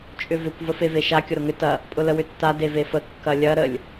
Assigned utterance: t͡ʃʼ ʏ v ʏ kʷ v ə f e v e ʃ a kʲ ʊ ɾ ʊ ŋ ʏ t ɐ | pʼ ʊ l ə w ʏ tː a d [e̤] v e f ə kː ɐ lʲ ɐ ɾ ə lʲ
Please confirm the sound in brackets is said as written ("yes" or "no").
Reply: no